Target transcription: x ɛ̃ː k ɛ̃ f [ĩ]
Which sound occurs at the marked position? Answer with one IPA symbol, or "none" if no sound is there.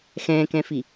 i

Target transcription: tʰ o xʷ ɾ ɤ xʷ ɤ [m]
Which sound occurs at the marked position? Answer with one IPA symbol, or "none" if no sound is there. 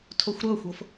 f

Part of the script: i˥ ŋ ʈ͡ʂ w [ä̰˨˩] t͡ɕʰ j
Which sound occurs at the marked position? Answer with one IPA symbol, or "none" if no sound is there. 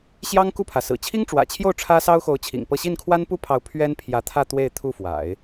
ä̰˨˩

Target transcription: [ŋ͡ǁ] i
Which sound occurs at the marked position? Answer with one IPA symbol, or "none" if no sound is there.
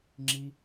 ŋ͡ǁ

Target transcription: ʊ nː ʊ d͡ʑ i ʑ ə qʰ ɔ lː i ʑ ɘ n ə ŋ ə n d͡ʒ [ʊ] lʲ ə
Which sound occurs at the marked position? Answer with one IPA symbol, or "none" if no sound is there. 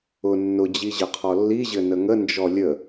ɔ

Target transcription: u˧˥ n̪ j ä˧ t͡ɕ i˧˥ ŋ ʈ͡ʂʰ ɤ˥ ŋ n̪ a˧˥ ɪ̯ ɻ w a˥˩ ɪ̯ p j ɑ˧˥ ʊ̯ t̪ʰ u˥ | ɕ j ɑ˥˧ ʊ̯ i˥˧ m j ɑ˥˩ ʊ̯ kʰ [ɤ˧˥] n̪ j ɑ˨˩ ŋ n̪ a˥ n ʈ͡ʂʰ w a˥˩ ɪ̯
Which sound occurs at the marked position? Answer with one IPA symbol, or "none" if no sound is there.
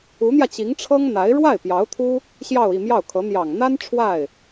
ɤ˧˥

